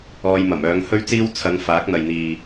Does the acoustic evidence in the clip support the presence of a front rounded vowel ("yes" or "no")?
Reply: yes